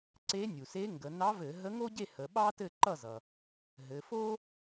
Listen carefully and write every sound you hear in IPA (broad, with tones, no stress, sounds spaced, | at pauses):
ǀ e˧˥ nʲ u˩ s e˧˥ ŋ ɡ ə˩˧ n ɑ˧˥ v ɘ˧˩˧ ɦ ə˧˥ ŋ o˥ ɟ e˥˨ h ə˩˧ ɓ ɑ˥ t ɘ˥˨ ǃ ʌ˥˨ z ʌ˩ | ɦ ɘ˩˧ f o˥